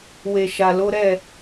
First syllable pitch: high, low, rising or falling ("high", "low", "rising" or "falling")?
low